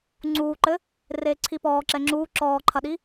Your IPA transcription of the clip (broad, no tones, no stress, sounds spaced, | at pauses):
ŋ͡ǀ uː ǃ ɘ | r eː ǀʰ i p ɔː ǁ ɛ ŋ͡ǁ uː ǁ ɔː ǃʰ ɐ ɗ i